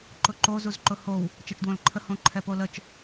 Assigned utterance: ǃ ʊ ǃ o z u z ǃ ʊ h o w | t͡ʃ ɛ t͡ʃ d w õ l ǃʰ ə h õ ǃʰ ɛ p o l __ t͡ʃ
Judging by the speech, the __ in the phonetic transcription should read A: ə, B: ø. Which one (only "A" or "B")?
A